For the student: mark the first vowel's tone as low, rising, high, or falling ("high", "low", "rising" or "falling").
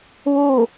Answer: falling